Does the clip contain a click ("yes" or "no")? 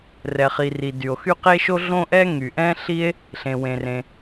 no